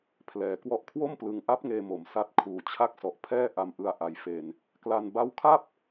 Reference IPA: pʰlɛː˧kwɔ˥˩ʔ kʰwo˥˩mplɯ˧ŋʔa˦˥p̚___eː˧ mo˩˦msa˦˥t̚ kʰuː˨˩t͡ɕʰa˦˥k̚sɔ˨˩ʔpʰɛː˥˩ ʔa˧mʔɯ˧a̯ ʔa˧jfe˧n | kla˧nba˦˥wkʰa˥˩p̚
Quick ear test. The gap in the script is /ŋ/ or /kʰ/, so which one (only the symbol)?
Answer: ŋ